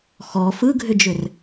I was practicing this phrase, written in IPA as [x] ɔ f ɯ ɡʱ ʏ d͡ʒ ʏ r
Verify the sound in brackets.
correct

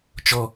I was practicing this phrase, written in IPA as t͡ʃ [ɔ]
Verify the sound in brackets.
correct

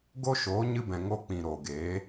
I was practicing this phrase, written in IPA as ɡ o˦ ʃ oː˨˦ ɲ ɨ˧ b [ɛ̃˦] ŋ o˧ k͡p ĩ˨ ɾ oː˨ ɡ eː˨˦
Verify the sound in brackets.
incorrect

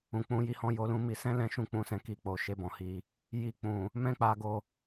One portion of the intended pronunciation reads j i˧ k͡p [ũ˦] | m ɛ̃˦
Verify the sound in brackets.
incorrect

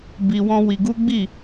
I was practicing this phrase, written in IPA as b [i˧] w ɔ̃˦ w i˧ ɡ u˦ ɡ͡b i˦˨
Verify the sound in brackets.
correct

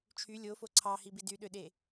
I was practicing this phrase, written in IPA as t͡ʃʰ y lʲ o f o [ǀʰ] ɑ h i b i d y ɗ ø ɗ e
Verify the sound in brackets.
correct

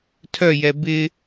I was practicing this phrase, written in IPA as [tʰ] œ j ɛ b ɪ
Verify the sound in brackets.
correct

